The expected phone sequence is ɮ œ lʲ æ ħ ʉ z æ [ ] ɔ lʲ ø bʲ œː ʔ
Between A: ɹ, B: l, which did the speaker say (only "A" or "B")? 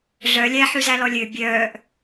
B